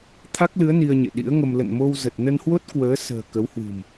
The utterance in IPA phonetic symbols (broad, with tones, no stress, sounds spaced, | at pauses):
t̪ʰ a˦˥ k̚ l ɨ˨˦ ə̯ n i˧ ə̯ ɲ ḛ˧˨ ɗ ḭ˧˥ ə̯ ŋ ə˧ m l ə̰˧˨ n m o˧ w z ə˨˩ t̚ n ə˧ n h w o˦˥ t̚ k w əː˨˦ s ə̤ː˨˩ k ə˨˦ w h w ɨ̤˨˩ m